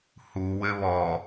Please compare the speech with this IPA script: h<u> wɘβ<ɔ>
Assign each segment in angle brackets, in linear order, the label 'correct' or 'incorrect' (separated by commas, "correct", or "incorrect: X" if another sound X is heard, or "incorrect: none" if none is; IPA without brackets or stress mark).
correct, correct